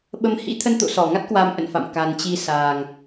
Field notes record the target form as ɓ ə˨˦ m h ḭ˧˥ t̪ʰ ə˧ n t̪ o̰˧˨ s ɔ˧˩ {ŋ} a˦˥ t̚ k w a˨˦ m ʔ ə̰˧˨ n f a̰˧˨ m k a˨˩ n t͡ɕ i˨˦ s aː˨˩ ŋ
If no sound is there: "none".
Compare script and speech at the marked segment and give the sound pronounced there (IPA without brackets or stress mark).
ŋ